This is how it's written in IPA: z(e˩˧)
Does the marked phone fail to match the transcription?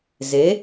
no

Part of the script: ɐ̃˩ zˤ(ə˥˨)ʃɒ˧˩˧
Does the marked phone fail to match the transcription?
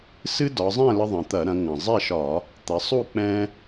yes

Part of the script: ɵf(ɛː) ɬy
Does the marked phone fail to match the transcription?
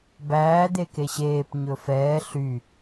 no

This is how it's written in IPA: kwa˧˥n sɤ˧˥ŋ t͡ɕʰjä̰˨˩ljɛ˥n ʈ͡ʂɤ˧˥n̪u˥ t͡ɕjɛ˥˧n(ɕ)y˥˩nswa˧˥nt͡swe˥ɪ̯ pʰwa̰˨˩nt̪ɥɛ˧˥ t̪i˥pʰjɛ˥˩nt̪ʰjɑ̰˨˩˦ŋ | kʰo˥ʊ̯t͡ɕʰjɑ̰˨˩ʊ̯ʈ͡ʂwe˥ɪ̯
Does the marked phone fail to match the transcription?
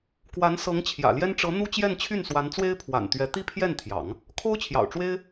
yes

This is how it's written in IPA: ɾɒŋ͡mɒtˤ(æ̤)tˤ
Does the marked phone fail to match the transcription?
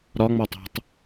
no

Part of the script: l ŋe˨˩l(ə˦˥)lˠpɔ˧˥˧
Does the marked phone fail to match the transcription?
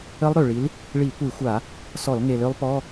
yes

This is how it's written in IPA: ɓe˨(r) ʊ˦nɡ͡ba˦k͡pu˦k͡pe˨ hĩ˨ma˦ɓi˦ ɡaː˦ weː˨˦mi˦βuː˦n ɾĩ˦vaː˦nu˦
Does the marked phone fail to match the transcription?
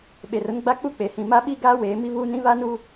no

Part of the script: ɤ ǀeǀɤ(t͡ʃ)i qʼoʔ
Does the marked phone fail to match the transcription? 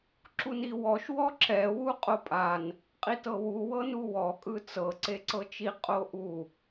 no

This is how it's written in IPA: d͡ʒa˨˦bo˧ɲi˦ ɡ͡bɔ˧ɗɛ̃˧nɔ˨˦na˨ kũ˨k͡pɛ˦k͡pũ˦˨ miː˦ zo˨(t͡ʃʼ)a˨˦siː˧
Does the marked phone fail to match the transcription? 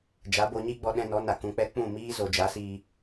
yes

